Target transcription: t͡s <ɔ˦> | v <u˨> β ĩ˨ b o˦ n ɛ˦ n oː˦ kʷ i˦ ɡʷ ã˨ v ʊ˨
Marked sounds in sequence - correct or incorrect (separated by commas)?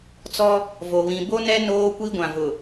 correct, incorrect